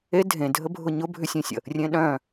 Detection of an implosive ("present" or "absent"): present